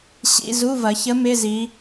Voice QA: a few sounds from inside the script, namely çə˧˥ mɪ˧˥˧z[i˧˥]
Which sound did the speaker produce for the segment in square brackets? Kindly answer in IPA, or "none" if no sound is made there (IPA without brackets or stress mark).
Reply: i˩˧